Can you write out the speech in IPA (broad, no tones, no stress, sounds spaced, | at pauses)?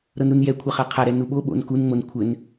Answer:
ɾ ɤ n ɾ u n j ɛ kʷʰ ɑ χ a qʰ a ɾ ɛ n u ɓ o ɓ o̰ n k u n ŋ͡m o n kʷʰ ɘ n